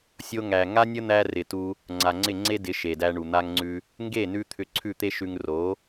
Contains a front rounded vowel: yes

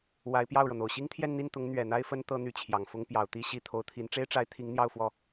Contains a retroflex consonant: yes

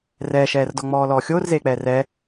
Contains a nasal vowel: no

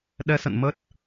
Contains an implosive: yes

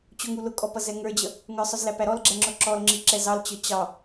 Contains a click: yes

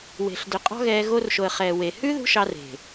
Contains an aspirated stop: no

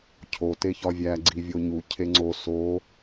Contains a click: yes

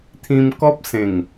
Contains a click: no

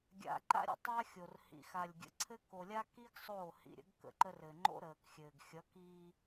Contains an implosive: no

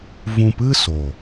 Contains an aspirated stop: no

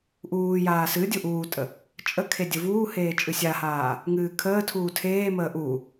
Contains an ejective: yes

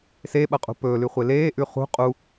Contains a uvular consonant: yes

